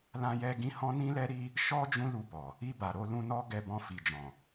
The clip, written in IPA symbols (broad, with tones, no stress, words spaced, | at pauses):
lã˦jɛ˦ ɡĩ˧hɔ̃˦nĩ˦lɛ˦ ɾi˦ | ʃɔ˦ d͡ʒũ˦lu˧bɔ˨ | i˧ba˨ɾo˧ lũ˧nɔ˦ ɡɛ˧bɔ̃˧ fi˨d͡ʒɔ̃˨